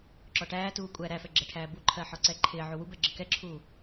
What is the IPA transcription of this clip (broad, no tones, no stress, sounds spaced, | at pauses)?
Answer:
ǁ ɔ ʈ æː t uː kʷʼ æ ɾ æ f ɛ ɡ͡ǁ ɛ ʈʰ æː b u ǃʰ ɜ ħ ɔ ǀ ɛ ǃʰ ɪː ʕ u w u b ɛ ɡ͡ǁ ə k ɛ ǁʰ uː